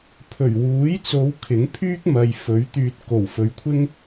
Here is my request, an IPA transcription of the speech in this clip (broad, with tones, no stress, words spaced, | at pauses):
pʰɵ˨˩ɥwuː˨˥jt͡so˨˧w kʰɪ˨˥ŋpʰyː˥k̚mɐ˨j fɵ˨˥ɥt̪yː˧t̚ ko˨˩wfɵ˨ɥkʷʰɪ˥ŋ